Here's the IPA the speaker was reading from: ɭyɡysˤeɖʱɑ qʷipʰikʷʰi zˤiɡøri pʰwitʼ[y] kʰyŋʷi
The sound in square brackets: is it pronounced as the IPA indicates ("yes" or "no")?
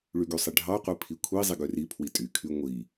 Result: yes